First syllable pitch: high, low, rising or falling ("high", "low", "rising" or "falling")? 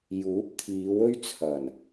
rising